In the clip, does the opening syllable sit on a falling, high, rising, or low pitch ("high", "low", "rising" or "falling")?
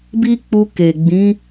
high